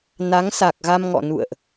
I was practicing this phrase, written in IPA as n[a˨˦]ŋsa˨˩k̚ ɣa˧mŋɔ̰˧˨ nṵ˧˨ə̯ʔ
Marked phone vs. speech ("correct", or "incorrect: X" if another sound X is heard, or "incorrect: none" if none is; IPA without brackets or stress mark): correct